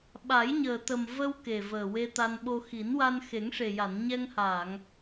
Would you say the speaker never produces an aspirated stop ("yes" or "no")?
yes